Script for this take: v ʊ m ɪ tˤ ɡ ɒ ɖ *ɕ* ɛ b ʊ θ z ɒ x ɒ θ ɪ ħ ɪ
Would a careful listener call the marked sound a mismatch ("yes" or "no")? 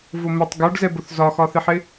yes